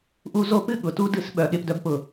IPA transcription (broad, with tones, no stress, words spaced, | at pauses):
ʔu˦zo˦ pɨ˦ ɠʊ˨ tu˦dɨ˦˨s ɓœ˦˨ɠe˦pdœ˦bpʊ˦˨